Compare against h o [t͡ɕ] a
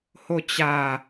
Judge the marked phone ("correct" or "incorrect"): correct